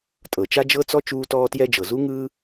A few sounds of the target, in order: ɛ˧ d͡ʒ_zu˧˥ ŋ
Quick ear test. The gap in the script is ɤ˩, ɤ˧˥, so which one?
ɤ˩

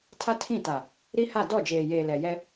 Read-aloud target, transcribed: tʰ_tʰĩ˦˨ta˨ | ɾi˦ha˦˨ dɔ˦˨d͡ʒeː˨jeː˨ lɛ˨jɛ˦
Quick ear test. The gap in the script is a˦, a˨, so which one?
a˦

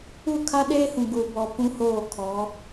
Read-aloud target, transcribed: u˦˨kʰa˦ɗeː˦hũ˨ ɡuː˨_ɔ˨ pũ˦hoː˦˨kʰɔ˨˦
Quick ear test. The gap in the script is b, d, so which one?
b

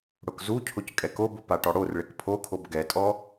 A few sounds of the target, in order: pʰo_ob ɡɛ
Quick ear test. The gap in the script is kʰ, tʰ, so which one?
kʰ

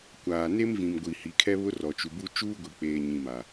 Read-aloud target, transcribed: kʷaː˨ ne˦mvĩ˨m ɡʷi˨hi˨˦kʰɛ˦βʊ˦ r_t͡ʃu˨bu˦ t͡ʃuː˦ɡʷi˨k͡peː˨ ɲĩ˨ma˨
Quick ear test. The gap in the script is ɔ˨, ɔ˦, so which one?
ɔ˨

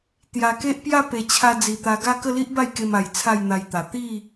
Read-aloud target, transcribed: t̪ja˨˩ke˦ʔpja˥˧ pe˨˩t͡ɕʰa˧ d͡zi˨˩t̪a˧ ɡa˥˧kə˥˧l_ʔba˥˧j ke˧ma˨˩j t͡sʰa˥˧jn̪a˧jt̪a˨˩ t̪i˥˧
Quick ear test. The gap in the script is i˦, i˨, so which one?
i˦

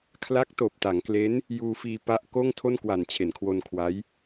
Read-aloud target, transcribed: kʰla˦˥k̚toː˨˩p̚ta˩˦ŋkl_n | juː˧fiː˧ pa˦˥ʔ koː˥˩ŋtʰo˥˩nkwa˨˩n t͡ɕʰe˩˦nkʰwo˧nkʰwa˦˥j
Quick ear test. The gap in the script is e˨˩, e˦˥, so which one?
e˦˥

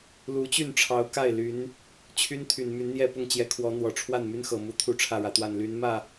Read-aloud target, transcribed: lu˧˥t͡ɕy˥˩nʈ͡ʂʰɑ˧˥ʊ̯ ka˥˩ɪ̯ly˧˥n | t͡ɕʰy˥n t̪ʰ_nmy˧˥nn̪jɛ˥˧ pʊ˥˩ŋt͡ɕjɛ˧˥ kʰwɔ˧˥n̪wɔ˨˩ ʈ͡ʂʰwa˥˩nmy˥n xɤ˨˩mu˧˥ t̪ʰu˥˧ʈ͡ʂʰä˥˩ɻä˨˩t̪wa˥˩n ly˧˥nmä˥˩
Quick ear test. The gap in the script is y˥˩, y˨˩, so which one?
y˨˩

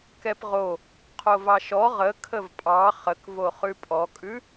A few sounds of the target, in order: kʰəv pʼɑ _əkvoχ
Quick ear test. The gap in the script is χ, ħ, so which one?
χ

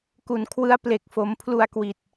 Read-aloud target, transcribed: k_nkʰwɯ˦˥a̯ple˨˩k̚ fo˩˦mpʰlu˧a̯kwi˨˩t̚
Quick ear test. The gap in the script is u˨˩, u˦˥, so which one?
u˨˩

